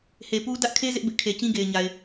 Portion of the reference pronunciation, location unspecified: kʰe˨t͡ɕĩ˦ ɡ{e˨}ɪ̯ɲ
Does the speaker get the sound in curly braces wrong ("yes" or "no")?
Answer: no